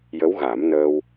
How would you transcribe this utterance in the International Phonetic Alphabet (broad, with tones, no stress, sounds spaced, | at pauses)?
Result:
j ə˧˥ w ɣ a˨˩˦ m n əː˧ w